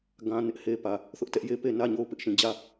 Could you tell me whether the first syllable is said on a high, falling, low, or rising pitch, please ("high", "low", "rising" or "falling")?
high